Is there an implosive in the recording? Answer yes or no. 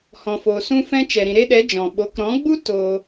yes